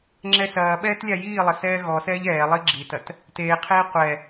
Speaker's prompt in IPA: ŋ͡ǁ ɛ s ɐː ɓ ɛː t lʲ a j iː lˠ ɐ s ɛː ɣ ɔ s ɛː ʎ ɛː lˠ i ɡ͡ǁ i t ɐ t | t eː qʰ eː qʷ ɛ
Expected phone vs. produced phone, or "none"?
none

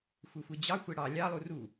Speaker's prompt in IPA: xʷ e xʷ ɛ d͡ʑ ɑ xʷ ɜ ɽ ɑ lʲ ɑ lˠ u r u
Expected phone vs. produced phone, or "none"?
ɜ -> ɛ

